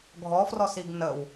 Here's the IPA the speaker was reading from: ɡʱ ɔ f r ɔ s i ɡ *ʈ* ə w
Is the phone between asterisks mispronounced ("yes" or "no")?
yes